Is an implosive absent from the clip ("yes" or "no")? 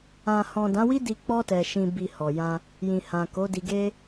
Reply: yes